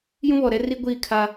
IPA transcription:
j ũ˦ β ɔ˨ ɾ ɛ˦ r i˦ ɡʷ iː˦˨ kʰ a˦

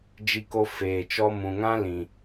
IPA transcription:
d͡ʒ i˧ k o˧ f eː˨ t͡ʃ ɔ˧ m ũ˨ ŋ ã˦ l ĩ˨

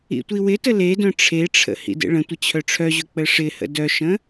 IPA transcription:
ḭ tʷ i w ɪ t ə l e d œ̃ ʈ͡ʂʰ e ʈ͡ʂʰ ə̰ h ḭ d ḛ ɭ ə̃ tʷ ə t͡ɕʰ œ ʈ͡ʂʰ œ ʑ ɵ k͡p ə ʂ ɪ h ə̰ d œ ʃ ə̃

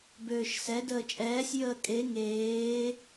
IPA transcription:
b øː ʃ s ɛ d əː t͡ʃʼ ɛː sʲ j əː kʼ e ŋ eː

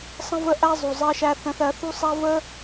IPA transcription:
sˤ ə̃˦ v ə˦ ʔ æ˦ zˤ u˨ zˤ ɜ˦ ʃ æ˦ θ ə̃˧ θ ɜ˧ θ u˦ sˤ æ˦ v ə˦

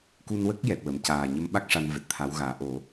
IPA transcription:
k u˧ n w ə˦˥ k̚ j ɛ˨˩ t̚ w ə˨˩˨ m c aː˨˩ ɲ ə˧˥ m ɓ a˦˥ k̚ ʂ a˧ n v ɛ˨˩ t̚ t̪ʰ a˧˥ w ɣ aː˨˩˦ ʔ o˨˩˦

